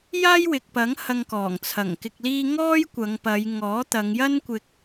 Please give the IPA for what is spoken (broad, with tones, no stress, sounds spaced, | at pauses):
j aː˥ j w ɪ˨ k̚ p ɐ˨˥ ŋ h ɐ˧ ŋ k ɔː˨˩ ŋ t͡sʰ ɐ˨˩ ŋ k ɪ˨ k̚ l iː˧ ŋ ɔː˥ j kʷ ɐ˨˧ ŋ p ɐ˨˧ j ŋ ɔː˨˥ t̪ ɐ˨˧ ŋ j ɐ˥ n kʷ ɪ˧ k̚